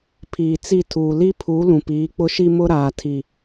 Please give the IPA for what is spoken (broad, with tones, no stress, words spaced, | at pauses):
pʰiː˨t͡si˦˨tʰuː˨ li˦pʰu˨˦ lũ˨piː˨˦k͡pʊ˦ʃi˦ mʊ˦ɾaː˨tʰi˨